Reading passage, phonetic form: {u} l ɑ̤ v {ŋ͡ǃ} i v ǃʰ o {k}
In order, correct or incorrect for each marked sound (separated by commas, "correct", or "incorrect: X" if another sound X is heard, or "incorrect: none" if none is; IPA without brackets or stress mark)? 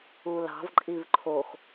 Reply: correct, incorrect: ǃʼ, incorrect: x